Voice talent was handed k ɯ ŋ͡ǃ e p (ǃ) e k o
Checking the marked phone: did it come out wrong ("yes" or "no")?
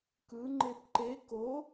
no